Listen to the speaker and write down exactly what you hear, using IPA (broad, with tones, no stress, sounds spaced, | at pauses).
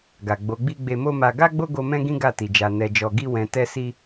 ɡ a˨ ɡ͡b o˨˦ ɡ͡b i˦ ɡ͡b e˧ m o˦ m a˧ ɡ a˦ ɡ͡b o˦ ɡ o˧ m ɛ̃˦ ɡ ĩ˦ ɡ a˦˨ t i˨ d͡ʒ a˨ n ɛ˨ d͡ʒ ɔ˨ ɡ i˧ w ɛ̃˨ t ɛ˧ s i˧